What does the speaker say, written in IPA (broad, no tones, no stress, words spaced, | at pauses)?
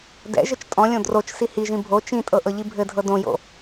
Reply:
dɛ̰ʒɘt͡ʃ tʼɔ̃lʲõ drot͡ʃ sihiʒĩ bʱo t͡ʃĩtʼɤ ʔɤʎibʱɘdʱɤ dõjo̰